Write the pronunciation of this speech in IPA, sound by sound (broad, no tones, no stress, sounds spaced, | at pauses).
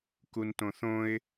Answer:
k u n t õ θ õ ɪ̯